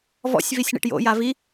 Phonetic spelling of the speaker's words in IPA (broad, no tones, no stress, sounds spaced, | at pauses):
v ɔ̰ sʲ v i sʲ ɳ ḭ ʈ j o̰ j a v i